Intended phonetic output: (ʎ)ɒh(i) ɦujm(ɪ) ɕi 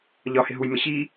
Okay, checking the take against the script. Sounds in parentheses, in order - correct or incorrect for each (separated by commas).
correct, incorrect, correct